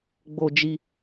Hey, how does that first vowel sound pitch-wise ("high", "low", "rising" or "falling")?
low